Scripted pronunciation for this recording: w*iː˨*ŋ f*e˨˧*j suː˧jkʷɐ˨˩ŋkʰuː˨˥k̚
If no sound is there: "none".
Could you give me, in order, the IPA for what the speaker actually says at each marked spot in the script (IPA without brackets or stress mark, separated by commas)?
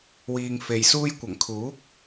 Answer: iː˨, e˨